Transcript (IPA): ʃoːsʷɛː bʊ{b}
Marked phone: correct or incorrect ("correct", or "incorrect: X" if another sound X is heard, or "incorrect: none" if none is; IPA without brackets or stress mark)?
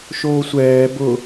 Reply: incorrect: none